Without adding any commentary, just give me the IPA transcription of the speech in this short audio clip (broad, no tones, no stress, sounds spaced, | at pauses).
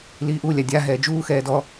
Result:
l iː ʔ u lʲ a dʲ a ɦ ɛː d͡ʒ uː x ɛː d ɔ